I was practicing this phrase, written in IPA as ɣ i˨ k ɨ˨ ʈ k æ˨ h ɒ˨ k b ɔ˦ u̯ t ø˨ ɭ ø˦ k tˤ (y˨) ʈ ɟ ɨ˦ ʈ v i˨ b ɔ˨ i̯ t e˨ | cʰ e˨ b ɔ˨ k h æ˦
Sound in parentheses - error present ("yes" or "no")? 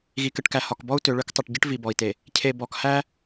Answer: yes